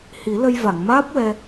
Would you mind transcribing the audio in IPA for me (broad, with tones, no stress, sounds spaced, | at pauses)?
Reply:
h i˨˩˦ l ə˧ j v a˨˩˨ ŋ m aː˦˥ p̚ w ɛ˧